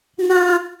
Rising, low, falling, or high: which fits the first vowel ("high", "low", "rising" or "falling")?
high